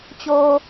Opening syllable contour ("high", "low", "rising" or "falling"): low